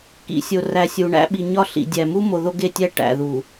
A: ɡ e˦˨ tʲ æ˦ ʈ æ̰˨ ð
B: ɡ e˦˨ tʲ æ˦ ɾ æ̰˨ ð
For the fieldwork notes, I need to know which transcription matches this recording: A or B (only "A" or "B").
A